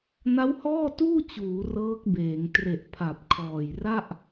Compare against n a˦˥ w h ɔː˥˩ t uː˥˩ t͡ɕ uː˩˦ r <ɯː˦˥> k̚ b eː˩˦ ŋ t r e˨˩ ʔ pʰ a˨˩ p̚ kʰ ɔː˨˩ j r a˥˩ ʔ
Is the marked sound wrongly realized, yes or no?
yes